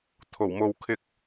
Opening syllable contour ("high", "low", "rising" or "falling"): low